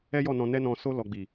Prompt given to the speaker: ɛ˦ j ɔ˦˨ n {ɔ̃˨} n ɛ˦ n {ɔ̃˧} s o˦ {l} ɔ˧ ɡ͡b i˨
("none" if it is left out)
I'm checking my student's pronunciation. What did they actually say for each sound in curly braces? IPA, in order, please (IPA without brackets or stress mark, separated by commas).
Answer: ɔ̃˧, ɔ̃˧, l